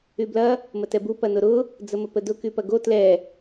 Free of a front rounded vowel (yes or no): no